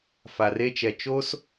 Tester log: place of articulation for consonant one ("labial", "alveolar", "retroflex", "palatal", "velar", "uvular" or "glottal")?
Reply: labial